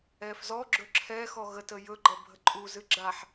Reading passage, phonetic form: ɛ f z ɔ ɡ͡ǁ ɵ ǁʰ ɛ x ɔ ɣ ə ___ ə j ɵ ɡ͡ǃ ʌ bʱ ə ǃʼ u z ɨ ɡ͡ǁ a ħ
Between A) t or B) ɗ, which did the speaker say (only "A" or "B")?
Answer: A